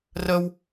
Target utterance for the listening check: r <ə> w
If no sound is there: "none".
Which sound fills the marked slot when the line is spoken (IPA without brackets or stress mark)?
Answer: ə